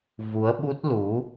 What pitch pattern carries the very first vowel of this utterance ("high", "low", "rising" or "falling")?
rising